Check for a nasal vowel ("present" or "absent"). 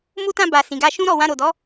present